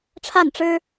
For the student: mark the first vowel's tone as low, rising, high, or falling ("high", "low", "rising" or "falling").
falling